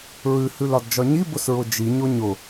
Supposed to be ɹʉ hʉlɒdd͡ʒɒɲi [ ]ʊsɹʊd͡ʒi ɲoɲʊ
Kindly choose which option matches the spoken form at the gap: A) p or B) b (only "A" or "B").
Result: B